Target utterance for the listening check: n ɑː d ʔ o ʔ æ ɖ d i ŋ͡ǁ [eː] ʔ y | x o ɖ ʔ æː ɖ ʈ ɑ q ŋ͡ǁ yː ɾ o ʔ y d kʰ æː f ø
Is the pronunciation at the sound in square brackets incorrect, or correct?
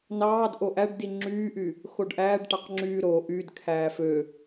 incorrect: yː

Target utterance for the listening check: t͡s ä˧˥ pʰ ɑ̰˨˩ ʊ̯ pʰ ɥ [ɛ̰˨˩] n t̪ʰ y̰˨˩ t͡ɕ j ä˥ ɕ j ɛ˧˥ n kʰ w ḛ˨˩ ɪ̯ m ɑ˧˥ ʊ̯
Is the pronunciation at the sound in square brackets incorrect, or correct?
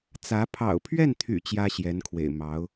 incorrect: ɛ˥˩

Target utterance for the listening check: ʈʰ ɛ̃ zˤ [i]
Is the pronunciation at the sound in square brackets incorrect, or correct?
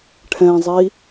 correct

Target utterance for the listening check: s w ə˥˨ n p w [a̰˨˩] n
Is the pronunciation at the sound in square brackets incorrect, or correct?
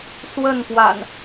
correct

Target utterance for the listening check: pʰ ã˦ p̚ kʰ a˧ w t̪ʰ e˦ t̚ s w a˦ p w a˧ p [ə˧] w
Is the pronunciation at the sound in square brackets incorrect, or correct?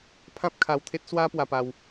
incorrect: a˧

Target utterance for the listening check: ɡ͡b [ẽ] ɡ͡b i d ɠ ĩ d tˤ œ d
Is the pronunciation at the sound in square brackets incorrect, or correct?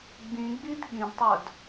incorrect: ĩ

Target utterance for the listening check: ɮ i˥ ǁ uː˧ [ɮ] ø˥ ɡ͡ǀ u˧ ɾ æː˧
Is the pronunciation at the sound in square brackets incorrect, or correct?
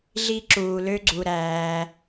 incorrect: l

